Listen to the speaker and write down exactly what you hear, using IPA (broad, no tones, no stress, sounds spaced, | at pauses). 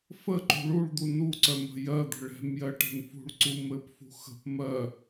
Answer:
f ə ǃ ṳ ɭ u ɭ d̪ u n u ǀ œ m ə̤ j ɜ d̪ ə̤ ɭ ɛ̤ m j ɜ ʈ ɛ̤ n f ṳ ɭ ǀ u m ɘ p f ṳ x ə̤ p m ɜ